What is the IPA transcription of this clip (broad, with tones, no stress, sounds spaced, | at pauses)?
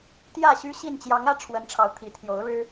t̪ j ä˥˨ ɕ y˦ ɕ i˥˨ n t͡ɕ j ɑ˨˦ ŋ ä˥˨ ʈ͡ʂʰ w ə˨˦ n ʈ͡ʂʰ ɑ˨˦ ʊ̯ t̪ʰ i˨˩ t̪ʰ j o˨˦ ʊ̯ ɻ ɻ̩˦